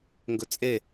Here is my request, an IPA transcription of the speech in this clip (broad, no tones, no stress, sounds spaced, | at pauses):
ŋ ɡ ɵ t͡sʼ e